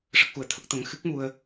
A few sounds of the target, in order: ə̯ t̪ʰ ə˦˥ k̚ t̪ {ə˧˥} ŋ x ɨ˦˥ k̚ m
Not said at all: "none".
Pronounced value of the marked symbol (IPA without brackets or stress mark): ə˧˥